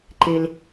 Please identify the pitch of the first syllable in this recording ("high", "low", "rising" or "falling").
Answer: low